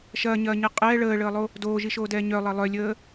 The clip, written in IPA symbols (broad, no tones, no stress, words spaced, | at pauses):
ʃɐːɲɐːɲɛ qʼɛː ɭəːɭəːlˠo | doːʒiʃoːdɛː ɲœlˠɐ lˠœlʲəː